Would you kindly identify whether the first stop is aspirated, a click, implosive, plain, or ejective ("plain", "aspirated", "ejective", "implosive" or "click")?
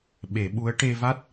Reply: implosive